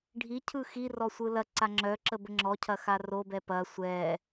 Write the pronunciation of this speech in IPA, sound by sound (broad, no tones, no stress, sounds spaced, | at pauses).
ɖʱ i cʰ ɯ x i r ɔ sʷ ɯ l ɐ ǀ a ŋ͡ǁ œ ǁ ə b ə ŋ͡ǁ ɔ cʰ ɐ x a r o b ɛ p ɐ sʷ ɛ